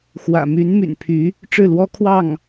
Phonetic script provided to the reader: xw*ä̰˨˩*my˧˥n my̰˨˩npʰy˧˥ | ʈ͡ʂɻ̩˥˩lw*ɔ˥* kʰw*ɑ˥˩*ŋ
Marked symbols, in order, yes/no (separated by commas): yes, yes, yes